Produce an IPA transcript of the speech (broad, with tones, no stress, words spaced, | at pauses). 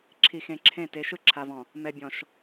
ǁʰi˨xẽ˨ǁʰẽ˦˨te˨˦ ʃɯ˦ǁʰa˨vɔ̃˨ | mɛ˨ bʲɔ̃˨ʃ